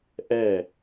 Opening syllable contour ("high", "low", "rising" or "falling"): falling